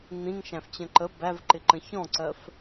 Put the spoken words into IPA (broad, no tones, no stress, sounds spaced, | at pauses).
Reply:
n̪ ĩ ŋ ʃ æ̃ f t͡ɕ ə̃ ǃ ə b æ v ǃ ɪ ǃ ə̃ ç ɔ̃ ǀ ɜ f